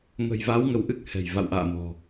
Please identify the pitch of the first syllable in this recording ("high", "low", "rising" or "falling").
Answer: low